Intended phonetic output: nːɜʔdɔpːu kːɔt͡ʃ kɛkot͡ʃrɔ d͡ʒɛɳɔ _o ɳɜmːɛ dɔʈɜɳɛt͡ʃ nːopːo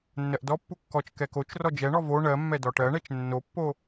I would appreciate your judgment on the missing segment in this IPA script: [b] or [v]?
v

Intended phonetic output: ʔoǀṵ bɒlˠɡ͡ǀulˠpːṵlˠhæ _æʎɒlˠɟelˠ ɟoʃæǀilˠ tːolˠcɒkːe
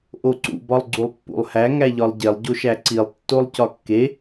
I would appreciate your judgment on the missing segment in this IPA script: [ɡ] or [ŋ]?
ŋ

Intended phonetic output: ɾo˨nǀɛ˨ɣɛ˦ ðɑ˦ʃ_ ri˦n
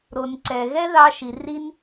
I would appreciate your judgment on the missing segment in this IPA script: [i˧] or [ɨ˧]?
i˧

